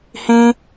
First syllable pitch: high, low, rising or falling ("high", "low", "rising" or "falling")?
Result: high